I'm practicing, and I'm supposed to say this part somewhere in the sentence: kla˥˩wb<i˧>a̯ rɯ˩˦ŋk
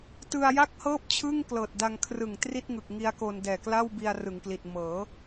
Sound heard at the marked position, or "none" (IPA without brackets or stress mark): i˧